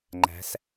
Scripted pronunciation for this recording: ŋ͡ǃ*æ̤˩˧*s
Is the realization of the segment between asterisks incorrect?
no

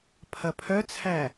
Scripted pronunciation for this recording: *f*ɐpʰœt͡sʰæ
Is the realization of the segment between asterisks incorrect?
yes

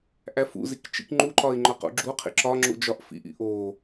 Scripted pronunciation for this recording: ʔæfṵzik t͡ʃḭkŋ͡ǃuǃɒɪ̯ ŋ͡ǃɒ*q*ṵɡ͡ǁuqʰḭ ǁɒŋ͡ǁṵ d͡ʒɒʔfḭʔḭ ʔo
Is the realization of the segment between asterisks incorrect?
no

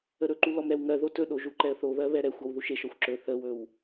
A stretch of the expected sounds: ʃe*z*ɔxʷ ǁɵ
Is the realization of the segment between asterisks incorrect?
yes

